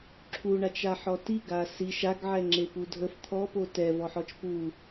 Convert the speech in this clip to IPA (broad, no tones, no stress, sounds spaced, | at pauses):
ǁʰ u ɳ a t͡ʃ a ħ ɔ t i ɡ a s i ʃ a ɡ ʕ ɛ ŋ͡ǁ e p u dʱ ə f t̪ʰ ɔ p o t ɛ v ɔ ħ ɔ t͡ʃ p u